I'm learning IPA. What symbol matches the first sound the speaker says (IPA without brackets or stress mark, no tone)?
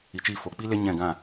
i